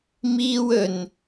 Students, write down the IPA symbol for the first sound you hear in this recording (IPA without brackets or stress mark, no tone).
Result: m